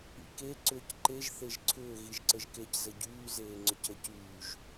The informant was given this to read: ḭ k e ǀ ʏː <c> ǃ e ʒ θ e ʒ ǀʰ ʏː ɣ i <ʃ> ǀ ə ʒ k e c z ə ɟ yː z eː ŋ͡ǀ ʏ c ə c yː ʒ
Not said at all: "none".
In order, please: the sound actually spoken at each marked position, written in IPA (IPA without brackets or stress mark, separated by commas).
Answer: c, ʒ